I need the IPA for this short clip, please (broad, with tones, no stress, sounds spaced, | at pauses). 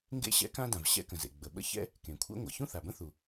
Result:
ŋ ɡ ḛ˥ ɕ ɛ̰˥ k ã˥ d ã˩ v ɕ ɛ̰˥ k ə̃˩ z ḛ˩ ɡ͡b ə˩ ɓ ə̰˥ ç ɛ̰˥ | k ẽ˩ kʷʰ ɛ̰˥ ŋʷ ɛ̰˩ ç ũ˥ θ a˩ b ə̃˥ θ u˩